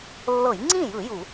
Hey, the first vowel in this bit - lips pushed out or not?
no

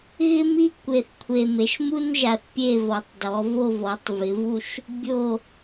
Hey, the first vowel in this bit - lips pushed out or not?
no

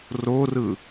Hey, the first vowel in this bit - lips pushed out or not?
yes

